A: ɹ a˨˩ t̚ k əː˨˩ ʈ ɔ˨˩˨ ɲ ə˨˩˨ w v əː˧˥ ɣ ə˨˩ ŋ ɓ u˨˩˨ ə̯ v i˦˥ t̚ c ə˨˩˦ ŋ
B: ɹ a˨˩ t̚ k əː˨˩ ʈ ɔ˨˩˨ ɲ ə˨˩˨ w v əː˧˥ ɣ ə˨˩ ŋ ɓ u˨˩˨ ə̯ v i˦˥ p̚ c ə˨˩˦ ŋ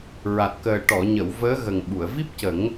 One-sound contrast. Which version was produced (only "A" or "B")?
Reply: B